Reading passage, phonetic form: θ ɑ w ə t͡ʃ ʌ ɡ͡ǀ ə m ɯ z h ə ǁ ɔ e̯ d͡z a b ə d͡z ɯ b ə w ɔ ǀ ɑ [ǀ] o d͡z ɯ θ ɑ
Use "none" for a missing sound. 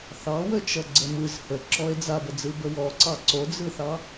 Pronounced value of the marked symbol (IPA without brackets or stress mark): ǀ